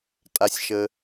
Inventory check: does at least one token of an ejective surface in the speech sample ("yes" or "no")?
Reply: yes